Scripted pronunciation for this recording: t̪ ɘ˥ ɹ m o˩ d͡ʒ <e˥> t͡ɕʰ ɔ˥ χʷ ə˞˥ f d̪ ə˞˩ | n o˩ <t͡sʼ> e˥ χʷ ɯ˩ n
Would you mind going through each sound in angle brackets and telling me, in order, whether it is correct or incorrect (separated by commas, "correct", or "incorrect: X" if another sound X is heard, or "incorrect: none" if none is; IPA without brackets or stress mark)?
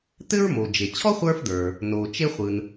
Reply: incorrect: e˩, incorrect: t͡ʃ